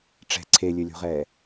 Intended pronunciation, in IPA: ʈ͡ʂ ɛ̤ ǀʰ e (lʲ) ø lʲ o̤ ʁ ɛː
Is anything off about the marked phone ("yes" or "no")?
no